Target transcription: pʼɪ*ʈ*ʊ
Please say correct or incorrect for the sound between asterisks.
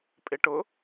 correct